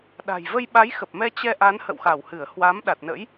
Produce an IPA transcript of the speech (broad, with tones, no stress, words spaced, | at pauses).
ɗa̤˨˩j və˧jɓa˨˦jxə˨˩p̚mɛ˧ t͡ɕɛ˧ʔa˨˦n hə̰˧˨wxa˧˩whɨ˧˩ə̯hwaː˨˦m ɗa˨˩t̚nə̰˧˥j